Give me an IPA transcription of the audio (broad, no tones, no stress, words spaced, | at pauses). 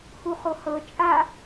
huχohɤ t͡ʃʼa